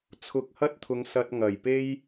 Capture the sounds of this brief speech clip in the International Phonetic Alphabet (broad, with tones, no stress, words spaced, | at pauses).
t͡sʰʊ˨k̚hɐ˥t̚t̪ʰʊ˨˧ŋ sɐ˧t̚ŋɐ˨˩jpe˥j